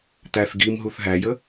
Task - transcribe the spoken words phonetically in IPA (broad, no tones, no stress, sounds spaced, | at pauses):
t̪ æ θ ɡ i m ɦ u θ ɦ æ j ə